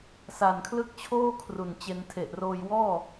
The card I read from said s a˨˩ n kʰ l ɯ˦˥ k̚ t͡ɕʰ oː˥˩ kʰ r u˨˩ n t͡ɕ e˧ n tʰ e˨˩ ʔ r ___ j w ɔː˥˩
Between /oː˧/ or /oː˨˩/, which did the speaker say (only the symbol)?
oː˧